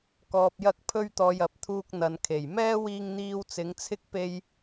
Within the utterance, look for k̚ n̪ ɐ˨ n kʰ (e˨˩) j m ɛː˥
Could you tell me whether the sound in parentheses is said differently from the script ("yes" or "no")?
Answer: no